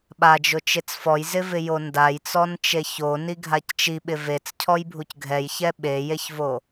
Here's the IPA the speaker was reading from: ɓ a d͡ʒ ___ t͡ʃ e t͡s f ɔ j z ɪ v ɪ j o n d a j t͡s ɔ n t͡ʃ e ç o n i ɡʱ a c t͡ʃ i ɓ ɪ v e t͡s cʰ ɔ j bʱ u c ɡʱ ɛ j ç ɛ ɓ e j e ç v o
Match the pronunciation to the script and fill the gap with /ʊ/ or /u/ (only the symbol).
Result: ʊ